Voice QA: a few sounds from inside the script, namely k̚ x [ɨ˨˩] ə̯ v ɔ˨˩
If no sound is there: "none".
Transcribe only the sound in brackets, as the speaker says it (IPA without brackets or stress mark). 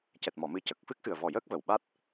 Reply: ɨ˨˩